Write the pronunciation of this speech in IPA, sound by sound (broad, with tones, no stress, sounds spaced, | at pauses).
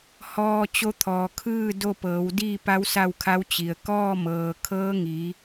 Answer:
h ɔː˧ t͡ɕ o˧˥ t̪ʰ ɔː˩ kʰ ɯː˥˨ d o˥˨ p ɤː˩˧ w d iː˥˨ p a˧˥ w s a˥˨ w kʰ a˧˥ w t͡ɕ i˩ ə̯ k ɔː˥˨ m ɤː˩ kʰ ɤː˧˥ ŋ iː˩˧